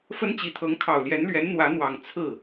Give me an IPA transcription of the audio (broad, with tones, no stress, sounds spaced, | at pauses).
f ə˥ n t͡ɕ i˧˥ t̪ʰ ɤ˧˥ ŋ kʰ ɑ˨˩ ʊ̯ l j ɛ˧˥ n l ɥ ɛ˧˥ n n̪ w ä˧˥ n̪ w ɑ˨˩ ŋ t͡sʰ ɹ̩˥˩